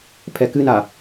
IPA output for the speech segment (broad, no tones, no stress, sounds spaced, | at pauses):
pʰ ɛ k ɨ n a